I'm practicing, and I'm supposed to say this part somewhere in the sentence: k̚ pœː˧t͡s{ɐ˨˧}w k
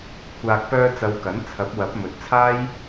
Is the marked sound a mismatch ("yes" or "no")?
no